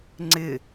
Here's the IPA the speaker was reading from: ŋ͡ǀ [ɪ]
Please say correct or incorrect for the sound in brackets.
correct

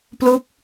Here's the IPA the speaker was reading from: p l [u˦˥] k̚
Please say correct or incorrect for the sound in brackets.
correct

